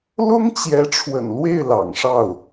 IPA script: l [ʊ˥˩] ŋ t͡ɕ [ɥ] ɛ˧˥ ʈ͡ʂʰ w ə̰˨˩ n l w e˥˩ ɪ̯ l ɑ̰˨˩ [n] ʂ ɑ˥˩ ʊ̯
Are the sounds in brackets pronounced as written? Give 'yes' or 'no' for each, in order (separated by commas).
no, no, no